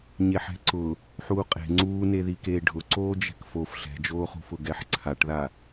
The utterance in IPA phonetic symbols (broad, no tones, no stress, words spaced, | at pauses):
ɲeħɛ̤ǀʊ | ħuːqʼe̤ ŋ͡ǀuːne ðikeːɖʱʊ ǀoːd͡ʒɛ̤kfof ɬɛ̤d͡ʒoːχṳfʊ ɡɛħǀʰaʈða